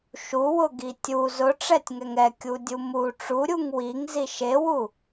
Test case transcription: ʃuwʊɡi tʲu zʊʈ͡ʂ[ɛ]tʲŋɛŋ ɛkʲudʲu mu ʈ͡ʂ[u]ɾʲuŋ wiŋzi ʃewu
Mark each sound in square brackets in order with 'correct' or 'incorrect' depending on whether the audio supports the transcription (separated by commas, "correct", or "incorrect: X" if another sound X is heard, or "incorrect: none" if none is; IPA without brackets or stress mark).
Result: correct, correct